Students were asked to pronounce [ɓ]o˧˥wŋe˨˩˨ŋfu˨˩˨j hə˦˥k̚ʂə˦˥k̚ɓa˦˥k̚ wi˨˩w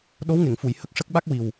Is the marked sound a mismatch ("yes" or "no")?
yes